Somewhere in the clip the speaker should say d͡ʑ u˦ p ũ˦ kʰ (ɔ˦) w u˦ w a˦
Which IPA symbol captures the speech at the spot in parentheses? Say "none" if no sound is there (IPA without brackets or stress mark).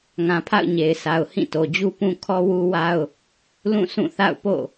ɔ˦